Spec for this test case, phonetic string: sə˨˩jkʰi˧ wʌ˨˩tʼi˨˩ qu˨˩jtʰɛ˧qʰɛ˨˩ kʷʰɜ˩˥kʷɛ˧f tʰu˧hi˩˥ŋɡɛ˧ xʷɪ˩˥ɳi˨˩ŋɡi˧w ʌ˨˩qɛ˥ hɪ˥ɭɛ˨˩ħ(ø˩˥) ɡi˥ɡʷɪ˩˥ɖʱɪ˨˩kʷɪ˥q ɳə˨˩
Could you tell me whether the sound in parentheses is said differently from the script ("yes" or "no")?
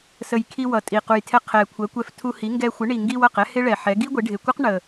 yes